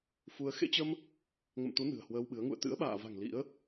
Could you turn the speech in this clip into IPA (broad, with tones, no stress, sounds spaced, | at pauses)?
f u˧ ə̯ x ḛ˧˥ t͡ɕ ə˧ m | ŋ ə̰˧˨ m t̪ u˨˦ n ɨ̤˨˩ ə̯ h w əː˧ w ɓ ɨ˨˦ ə̯ ŋ ṵ˧˨ ə̯ t̪ ɨ̰˧˥ ə̯ ɓ a̰ː˧˨ v a̤˨˩ ŋ l ḭ˧˥ ə̯